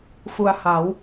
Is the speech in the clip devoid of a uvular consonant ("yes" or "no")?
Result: yes